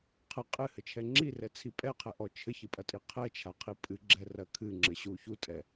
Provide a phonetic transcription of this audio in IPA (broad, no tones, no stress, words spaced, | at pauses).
qʰɘ qʼɨhɘt͡ʃʰɛ ŋ͡ǁirɛt͡sʰi pʼɛqʰɘʔɔ t͡ʃʰɘçɨpʼɐtʼi qʰɛt͡ʃʰaqʰi pʼɨɡ͡ǁɛrɐ kʰɨŋ͡ǁɘɕu çutʼɛ